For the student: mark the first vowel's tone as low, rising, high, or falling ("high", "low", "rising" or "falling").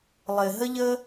low